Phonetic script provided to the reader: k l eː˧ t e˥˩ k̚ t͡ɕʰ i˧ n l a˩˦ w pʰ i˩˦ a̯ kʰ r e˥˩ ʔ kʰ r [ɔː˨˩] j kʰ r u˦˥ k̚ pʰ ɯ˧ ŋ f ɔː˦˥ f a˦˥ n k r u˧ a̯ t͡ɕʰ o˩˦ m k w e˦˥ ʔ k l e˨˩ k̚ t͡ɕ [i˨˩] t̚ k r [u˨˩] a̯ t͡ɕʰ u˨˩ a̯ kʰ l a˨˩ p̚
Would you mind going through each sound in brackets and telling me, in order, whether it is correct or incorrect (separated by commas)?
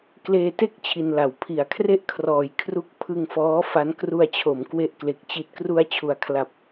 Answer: incorrect, correct, incorrect